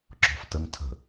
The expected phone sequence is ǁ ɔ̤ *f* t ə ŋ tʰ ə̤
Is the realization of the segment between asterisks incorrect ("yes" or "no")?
no